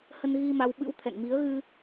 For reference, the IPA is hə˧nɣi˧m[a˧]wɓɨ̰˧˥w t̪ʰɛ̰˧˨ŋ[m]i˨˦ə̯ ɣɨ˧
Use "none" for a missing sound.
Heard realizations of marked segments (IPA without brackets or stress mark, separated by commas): a˧, m